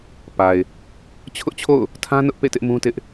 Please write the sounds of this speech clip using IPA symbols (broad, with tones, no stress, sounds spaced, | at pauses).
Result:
p a˨ ɪ̯ | t͡ɕʰ ʊ˦ ʔ t͡ɕʰ o̰˦˨ ʊ̯ | tʰ ã˦ n ʊ˦ ʔ p ḛ˦˨ t ɪ˦ ʔ m ũ˦ t ɪ˦ ʔ